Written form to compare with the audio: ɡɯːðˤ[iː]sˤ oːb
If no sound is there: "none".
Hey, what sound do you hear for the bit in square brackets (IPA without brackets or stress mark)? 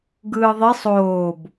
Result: i